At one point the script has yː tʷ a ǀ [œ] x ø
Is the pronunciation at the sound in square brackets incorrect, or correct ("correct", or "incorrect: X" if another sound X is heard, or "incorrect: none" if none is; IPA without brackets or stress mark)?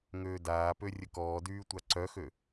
correct